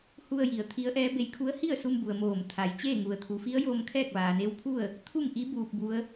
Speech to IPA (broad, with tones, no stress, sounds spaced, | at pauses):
h u˧ ə̯ j i˩˧ ə̯ t̪ʰ i˧˥ ə̯ ʔ ɛː˧˥ b e˧ j kʰ u˧˥ ə̯ h i˥˨ ə̯ s u˧ m b u˩ ə̯ m oː˧˩ m t̪ʰ a˩ j t͡ɕ eː˥˨ ŋ u˩ ə̯ t̪ʰ u˩˧ f i˧˥ ə̯ j oː˧ m kʰ ɛː˥˨ k̚ ʋ aː˩ n e˧˥ w pʰ u˥˨ ə̯ | t̪ʰ u˥˨ ŋ ʔ i˧˥ b uː˧ p̚ b u˧˥ ə̯